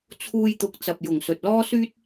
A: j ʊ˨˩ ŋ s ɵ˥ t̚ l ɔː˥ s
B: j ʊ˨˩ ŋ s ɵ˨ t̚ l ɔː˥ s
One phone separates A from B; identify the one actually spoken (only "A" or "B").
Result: B